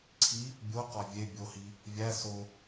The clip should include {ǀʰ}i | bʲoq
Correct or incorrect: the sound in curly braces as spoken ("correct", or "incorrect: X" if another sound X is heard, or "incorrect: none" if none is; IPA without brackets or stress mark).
correct